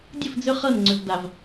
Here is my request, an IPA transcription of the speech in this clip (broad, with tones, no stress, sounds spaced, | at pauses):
dʲ ə˦˨ f d͡z ʏ˦ χ ɤ˦˨ n ŋ͡ǀ ʏ˨ v d a˨ v